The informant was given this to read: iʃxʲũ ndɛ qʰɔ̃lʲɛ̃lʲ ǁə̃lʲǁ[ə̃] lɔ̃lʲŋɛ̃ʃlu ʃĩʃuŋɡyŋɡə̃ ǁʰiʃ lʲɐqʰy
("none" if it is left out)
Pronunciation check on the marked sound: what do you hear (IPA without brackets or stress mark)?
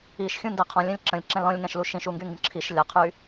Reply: ɛ̃